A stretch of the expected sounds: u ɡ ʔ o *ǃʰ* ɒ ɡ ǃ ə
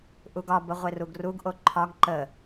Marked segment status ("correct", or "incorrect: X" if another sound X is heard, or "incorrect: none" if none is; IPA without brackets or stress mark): correct